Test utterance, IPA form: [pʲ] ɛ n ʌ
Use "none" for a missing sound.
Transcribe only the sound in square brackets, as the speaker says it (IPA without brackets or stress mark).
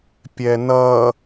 pʲ